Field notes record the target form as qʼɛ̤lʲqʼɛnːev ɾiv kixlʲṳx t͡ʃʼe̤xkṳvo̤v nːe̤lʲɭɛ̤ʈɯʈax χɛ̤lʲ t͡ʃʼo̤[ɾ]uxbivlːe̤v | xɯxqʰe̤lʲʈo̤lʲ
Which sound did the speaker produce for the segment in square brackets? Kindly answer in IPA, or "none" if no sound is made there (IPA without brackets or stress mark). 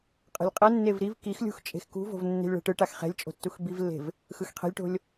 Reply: tː